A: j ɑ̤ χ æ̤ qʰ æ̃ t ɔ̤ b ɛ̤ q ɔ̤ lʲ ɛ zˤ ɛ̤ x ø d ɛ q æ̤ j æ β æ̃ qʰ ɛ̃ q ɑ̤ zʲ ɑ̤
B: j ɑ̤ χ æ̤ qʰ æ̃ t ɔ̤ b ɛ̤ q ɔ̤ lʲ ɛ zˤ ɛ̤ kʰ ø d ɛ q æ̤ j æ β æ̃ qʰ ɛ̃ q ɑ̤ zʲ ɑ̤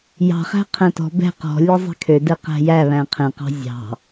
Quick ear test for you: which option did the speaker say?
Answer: B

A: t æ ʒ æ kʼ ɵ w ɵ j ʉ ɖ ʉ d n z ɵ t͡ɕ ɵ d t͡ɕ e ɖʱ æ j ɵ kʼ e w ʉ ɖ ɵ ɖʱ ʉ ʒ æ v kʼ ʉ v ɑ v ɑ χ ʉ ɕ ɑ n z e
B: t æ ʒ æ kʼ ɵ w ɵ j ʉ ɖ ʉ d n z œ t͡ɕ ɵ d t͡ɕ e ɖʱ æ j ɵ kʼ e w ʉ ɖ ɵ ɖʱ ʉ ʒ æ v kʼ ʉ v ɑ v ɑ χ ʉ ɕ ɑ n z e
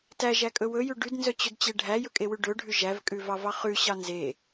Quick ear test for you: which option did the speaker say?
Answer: B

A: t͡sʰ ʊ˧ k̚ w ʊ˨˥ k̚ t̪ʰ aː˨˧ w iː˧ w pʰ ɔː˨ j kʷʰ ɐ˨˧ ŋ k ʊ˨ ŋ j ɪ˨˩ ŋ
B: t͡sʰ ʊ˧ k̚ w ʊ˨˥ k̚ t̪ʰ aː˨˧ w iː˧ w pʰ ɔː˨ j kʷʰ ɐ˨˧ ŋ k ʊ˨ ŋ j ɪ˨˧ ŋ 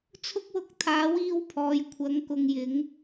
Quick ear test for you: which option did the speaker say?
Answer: B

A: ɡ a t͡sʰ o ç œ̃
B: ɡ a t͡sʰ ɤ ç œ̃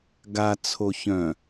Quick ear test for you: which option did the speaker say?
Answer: A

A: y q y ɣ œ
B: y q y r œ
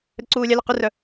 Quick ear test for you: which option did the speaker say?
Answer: B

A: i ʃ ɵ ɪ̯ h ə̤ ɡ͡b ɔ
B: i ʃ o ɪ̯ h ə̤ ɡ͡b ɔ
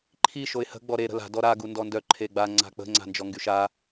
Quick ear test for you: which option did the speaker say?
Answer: B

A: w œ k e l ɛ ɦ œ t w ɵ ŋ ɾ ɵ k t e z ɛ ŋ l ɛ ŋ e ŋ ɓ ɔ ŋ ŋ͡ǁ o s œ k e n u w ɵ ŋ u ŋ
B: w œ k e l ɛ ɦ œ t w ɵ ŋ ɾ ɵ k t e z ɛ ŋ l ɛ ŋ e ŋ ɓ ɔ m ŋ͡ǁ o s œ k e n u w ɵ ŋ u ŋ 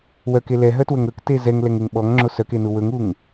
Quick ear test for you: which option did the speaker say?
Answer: A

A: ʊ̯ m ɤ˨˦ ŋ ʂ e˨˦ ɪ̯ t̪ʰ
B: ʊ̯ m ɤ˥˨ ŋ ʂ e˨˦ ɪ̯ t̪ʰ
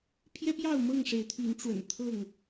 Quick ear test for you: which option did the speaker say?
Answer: B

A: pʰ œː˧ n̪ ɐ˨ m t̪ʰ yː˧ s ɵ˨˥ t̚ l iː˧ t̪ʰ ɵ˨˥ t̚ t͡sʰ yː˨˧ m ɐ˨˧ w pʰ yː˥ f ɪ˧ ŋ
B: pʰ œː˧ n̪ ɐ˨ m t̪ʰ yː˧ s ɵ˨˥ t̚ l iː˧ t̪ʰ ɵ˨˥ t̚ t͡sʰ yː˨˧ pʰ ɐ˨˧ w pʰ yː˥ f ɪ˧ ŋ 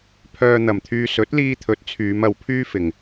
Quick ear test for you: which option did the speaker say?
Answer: A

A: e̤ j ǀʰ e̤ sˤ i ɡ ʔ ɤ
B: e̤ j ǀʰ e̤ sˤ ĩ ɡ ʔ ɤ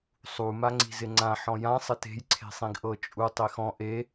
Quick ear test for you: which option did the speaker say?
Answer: B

